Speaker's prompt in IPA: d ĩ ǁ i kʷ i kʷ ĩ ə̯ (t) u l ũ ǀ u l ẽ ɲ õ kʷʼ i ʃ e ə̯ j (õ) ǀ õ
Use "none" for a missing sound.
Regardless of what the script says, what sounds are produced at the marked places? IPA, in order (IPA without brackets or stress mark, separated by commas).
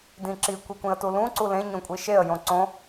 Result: t, õ